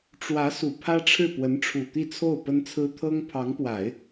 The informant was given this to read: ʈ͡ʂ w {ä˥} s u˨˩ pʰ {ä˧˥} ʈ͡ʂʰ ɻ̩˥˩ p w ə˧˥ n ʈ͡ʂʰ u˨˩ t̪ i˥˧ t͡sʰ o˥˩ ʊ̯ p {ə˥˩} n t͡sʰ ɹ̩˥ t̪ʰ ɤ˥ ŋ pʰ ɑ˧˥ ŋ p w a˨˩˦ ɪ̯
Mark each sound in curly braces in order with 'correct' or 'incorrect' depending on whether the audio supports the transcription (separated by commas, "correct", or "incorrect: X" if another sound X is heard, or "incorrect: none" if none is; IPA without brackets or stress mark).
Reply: incorrect: ä˧˥, incorrect: ä˥, incorrect: ə˥